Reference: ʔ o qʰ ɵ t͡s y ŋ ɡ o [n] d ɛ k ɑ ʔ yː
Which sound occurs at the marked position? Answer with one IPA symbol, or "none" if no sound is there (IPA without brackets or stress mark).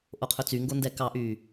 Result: n